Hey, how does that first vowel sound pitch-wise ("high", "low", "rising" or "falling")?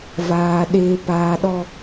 low